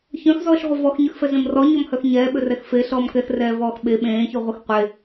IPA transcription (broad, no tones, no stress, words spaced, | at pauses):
çœ̃xzɔːʃʁʷə vɔxɲyxfɛzẽm rɔɲɔmhœx ɲɛːɓʏrɛx feɬɔːm kɛxrɛːvɔːx ɓe ɓẽːçyʁʷəx qʷe